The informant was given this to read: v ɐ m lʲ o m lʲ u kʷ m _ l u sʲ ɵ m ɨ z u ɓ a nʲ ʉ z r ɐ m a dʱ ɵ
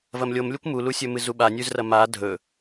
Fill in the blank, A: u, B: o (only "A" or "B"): A